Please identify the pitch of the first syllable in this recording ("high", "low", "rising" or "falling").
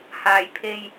low